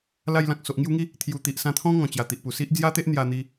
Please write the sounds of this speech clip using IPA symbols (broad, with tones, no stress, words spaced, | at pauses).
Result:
la˧jlã˨k̚ so˨ʔŋju˧ŋi˥˧ | t̪ʰju˨˩t̪i˨ʔ sã˧t̪ʰɔ̃˦ ŋɔ̃˨˩t͡ɕja˨˩t̪i˨ʔpu˨˩ si˦ʔ d͡zja˦t̪e˦ʔ n̪ja˧n̪i˧